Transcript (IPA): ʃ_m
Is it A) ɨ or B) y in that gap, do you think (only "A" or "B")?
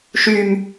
B